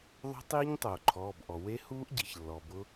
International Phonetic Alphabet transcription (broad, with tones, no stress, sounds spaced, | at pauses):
ðˤ o̤˦˥ tˤ iː˦˥ ɲ tˤ oː˩ ǃʰ ɔː˩˧˩ b ʔ ɔ˩ w e˦˥ h uː˦˥ ʔ ɟ i˩ ç lː ɔ˩ b ʊ˦˥